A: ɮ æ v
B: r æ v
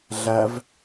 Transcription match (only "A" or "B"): A